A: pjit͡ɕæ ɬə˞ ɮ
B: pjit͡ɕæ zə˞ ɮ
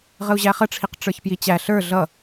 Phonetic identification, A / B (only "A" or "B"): A